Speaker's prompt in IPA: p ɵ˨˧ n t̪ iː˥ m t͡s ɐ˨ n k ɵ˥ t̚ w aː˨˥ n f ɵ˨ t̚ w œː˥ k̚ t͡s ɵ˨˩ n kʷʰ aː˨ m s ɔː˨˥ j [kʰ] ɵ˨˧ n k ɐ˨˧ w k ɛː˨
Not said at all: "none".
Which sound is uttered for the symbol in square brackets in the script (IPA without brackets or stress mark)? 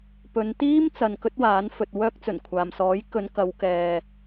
k